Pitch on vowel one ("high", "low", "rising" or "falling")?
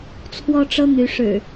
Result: high